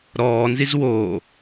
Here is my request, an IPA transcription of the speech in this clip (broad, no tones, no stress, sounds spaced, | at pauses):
ɾ ɔː n z i z w oː